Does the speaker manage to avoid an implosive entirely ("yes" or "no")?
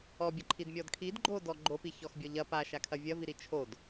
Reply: yes